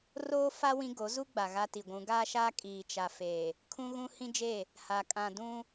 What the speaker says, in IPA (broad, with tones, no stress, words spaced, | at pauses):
roː˦ fa˦ wĩ˦ɡo˨˦ zu˦ ɡ͡ba˨ɣa˦ti˨ɡʷũ˨˦ ɡaː˦ʃaː˦ kʼiː˨t͡ʃa˨fe˨ | kʰũ˦ɣũ˦hĩ˦d͡ʒe˦˨ | ha˨kʼã˨ dũ˦